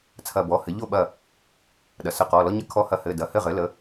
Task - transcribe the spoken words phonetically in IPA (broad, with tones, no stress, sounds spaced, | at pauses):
t͡sʰ ɐ˧˩ b ɔ˩˧˩ h ɘ˩˥ ʎ o˥˩ ɓ ɐ˧˩ | ɗ ɐ˩ s ə˧˩ q ɔ˩˧˩ l ɔ˦ ɲ ə˦ kʰ ɔ˧˩ h ɐ˧˩ h ɘ˩˧˩ d ɐ˩˧˩ h ɘ˥˩ ʁ ɘ˩˥ l ə˩˥